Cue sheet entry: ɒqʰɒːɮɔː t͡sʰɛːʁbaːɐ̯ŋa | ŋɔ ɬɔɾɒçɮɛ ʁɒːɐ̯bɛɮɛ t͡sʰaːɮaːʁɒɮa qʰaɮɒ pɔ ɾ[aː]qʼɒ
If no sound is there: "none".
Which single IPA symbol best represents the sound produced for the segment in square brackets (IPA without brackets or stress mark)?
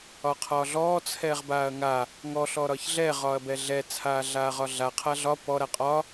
a